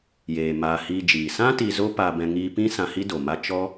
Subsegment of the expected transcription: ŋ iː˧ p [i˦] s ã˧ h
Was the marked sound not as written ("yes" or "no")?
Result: yes